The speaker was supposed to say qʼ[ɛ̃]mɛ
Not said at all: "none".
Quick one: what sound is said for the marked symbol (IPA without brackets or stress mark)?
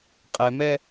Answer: ɛ